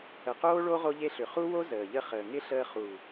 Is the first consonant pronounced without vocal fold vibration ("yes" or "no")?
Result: yes